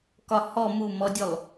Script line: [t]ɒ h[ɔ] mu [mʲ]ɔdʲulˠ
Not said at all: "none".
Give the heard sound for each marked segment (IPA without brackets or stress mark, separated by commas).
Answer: k, ɔ, m